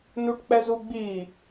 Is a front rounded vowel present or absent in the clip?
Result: absent